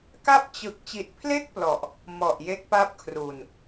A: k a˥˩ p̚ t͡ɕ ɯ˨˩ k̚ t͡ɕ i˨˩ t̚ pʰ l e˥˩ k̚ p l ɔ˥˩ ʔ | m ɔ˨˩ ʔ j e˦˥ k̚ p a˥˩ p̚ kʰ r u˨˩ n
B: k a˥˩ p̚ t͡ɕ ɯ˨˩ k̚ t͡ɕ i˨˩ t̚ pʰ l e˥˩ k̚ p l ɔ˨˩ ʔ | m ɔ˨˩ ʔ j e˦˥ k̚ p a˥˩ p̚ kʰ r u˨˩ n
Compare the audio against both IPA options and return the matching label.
B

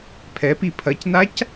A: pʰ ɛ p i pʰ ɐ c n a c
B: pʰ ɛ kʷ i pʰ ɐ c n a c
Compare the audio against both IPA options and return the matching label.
A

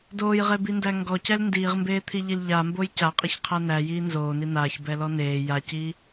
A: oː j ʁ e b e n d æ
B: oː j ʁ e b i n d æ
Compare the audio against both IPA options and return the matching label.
B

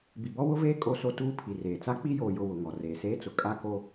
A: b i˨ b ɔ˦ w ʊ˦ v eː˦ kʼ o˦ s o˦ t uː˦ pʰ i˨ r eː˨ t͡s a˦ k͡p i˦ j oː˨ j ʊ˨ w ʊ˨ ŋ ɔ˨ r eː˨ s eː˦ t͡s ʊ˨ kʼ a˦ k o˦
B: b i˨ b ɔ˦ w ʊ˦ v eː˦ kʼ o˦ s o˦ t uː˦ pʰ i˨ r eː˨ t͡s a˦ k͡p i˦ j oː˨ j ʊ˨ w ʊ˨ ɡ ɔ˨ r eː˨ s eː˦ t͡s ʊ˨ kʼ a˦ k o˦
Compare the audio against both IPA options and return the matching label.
A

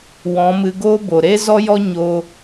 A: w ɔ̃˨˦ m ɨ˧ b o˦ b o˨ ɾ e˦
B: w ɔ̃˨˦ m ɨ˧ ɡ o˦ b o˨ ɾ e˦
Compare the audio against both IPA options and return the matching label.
B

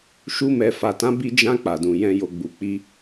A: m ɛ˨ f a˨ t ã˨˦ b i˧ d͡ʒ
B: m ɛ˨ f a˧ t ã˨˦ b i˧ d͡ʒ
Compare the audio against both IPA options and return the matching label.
A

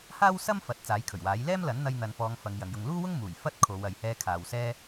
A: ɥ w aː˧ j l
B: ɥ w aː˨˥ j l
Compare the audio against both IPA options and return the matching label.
B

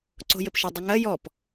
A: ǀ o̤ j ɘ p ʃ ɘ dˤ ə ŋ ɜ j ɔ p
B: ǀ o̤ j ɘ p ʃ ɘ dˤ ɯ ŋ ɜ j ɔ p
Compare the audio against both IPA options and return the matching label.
A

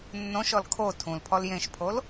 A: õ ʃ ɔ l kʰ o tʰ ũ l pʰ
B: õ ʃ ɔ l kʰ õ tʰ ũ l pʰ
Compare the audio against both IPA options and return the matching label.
A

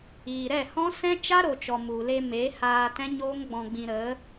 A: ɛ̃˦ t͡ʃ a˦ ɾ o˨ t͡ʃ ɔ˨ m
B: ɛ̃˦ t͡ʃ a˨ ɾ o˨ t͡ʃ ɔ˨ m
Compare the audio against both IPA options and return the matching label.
A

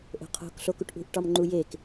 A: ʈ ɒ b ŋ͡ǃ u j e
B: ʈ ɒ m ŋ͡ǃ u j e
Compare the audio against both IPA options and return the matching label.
B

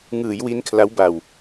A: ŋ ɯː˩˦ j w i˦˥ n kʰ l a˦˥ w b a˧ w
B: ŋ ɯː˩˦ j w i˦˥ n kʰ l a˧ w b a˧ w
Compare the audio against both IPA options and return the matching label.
A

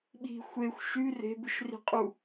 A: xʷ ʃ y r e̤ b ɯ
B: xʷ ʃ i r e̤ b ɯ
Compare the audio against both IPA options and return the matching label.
A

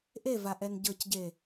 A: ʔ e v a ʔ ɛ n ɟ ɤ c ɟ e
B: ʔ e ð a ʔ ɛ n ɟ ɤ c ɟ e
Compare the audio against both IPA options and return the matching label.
A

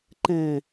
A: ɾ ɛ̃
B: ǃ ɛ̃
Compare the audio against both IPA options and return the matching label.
B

